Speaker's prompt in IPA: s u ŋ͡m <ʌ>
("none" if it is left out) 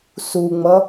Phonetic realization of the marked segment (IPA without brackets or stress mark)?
ʌ